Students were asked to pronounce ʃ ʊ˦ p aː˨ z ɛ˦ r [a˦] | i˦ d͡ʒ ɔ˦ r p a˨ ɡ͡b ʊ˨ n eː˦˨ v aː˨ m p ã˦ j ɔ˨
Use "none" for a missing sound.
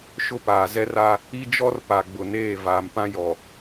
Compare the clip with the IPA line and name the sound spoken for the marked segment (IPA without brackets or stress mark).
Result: a˦